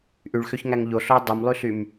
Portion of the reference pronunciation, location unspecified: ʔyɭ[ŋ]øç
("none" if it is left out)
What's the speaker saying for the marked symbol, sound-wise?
x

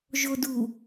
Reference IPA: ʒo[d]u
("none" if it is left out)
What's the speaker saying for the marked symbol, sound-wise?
d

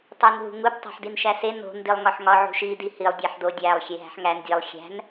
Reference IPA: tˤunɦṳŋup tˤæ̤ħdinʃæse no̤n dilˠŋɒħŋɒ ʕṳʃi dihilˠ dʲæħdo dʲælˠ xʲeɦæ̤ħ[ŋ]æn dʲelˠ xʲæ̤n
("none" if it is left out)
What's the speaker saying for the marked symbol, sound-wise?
ŋ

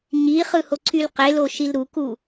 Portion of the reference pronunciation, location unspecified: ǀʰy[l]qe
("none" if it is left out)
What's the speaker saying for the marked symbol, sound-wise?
l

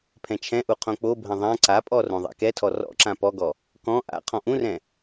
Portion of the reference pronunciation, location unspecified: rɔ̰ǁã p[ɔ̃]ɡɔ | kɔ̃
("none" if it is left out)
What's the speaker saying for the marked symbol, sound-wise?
ɔ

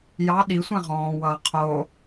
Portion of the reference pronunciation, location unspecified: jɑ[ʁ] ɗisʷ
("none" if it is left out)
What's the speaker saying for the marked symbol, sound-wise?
none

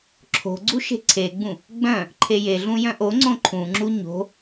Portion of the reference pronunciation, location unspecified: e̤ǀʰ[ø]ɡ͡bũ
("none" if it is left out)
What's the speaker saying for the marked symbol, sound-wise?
e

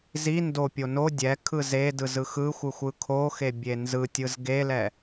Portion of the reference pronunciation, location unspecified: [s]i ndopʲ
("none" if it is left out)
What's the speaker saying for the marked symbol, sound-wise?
z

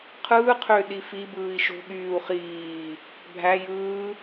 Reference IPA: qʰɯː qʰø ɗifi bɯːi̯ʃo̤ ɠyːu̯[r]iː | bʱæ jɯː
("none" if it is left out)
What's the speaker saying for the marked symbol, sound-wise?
χ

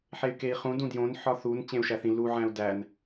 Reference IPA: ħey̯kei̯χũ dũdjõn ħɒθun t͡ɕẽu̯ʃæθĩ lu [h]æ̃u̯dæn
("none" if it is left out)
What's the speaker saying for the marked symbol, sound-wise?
ʕ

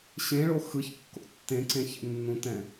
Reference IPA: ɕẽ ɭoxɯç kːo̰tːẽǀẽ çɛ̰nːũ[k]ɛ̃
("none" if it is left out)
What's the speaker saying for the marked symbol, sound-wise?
t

